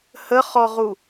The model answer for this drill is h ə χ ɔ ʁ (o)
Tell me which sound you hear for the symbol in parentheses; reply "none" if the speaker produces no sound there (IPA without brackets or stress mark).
u